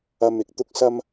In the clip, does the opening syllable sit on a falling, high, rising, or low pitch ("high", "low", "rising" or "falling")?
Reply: high